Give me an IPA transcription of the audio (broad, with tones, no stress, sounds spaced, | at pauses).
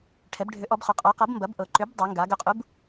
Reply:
ʈʰ ɛ˩˧ b ɖʱ ʏ˩˥ ʔ ɔ˩˧ b χ ʏ˩˧ qʼ ɔ˩˥ q ɤ˩˥ b m b ɐ˩˥ b ʔ ɤ˩˧ ǃ ʏ˩˥ b dˤ o˩˧ ŋ ɡ a˩˧ ɡ ʏ˩˥ qʼ u˩˥ b